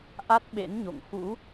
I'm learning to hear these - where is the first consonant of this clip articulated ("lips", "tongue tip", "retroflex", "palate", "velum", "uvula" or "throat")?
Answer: throat